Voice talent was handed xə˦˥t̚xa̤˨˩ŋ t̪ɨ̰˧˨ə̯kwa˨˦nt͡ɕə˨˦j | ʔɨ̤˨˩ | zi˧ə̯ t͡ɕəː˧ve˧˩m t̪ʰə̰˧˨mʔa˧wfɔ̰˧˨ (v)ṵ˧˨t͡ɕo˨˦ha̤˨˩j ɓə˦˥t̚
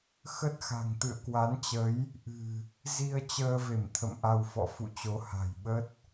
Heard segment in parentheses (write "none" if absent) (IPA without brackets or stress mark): f